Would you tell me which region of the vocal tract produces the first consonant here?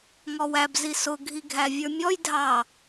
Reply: velum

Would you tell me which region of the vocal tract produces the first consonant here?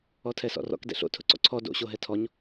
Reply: tongue tip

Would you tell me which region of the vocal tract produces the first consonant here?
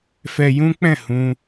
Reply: lips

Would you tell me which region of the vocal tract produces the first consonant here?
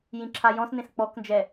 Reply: palate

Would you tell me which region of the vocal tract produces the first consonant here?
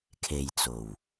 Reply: velum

